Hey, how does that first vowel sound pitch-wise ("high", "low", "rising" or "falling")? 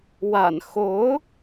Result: low